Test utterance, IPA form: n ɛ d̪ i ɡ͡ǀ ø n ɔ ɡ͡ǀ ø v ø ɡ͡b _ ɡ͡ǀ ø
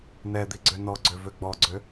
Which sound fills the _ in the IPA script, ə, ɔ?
ɔ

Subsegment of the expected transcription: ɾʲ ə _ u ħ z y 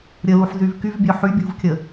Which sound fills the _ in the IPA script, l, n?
l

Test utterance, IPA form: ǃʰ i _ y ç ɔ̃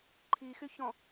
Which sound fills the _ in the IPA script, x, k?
x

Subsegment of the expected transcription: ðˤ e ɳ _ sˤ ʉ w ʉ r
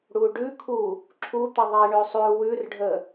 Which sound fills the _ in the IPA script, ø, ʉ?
ø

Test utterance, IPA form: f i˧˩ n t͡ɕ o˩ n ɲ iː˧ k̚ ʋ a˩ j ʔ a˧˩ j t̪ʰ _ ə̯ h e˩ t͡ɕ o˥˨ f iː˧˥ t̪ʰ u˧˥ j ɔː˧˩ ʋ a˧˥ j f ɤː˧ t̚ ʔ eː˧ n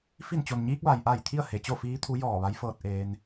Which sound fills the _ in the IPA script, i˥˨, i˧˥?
i˥˨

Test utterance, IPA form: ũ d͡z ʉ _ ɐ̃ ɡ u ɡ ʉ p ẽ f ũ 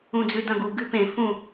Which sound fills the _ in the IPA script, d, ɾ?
d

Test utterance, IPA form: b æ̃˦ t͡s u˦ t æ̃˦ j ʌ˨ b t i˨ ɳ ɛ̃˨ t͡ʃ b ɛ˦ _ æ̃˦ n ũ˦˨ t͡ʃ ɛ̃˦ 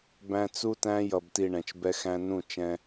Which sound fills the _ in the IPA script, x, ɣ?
x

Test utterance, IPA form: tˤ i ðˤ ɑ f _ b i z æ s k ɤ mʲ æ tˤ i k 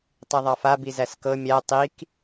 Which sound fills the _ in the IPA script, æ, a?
a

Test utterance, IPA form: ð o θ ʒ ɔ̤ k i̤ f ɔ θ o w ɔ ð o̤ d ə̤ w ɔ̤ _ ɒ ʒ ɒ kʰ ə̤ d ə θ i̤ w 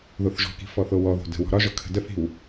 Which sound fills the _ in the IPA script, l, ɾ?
ɾ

